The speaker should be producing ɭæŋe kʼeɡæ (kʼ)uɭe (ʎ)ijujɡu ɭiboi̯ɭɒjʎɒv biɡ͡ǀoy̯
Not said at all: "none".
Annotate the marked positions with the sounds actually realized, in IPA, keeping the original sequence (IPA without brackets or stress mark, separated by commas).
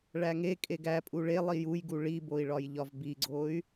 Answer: pʼ, lˠ